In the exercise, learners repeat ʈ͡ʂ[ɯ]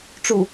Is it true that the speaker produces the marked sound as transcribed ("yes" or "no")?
no